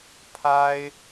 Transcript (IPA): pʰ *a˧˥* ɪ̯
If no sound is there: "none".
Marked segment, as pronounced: a˥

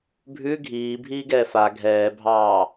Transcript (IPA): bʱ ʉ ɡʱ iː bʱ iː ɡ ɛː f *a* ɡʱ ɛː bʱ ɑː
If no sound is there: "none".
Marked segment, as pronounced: a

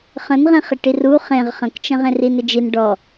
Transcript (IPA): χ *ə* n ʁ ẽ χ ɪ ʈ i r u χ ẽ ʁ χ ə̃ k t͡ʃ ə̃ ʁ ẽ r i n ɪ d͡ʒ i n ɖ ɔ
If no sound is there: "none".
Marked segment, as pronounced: ə̃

